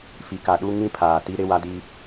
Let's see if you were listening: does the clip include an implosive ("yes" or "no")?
yes